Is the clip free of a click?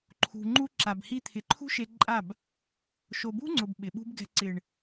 no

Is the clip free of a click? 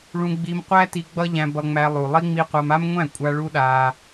yes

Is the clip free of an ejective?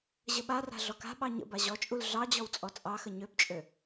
no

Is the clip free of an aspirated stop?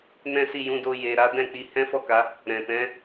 yes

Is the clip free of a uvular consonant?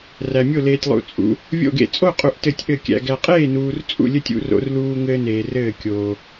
no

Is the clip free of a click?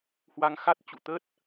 yes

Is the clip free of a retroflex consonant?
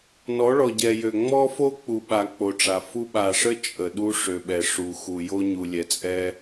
no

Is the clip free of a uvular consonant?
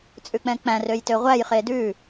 no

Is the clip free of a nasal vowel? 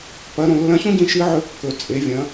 no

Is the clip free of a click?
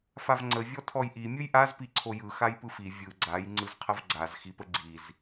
no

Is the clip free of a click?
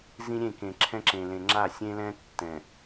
no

